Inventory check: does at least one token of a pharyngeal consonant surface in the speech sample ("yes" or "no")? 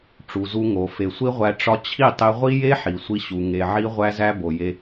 yes